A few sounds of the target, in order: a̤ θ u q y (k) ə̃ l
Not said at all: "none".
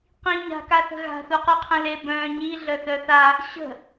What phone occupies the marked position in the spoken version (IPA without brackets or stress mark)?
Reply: qʰ